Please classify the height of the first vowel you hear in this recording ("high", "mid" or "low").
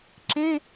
mid